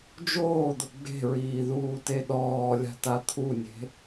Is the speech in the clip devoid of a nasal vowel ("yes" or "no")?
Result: yes